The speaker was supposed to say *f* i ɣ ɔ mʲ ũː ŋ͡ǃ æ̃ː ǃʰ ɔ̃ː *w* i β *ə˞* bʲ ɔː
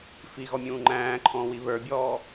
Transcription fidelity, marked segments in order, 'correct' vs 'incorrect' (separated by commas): correct, correct, correct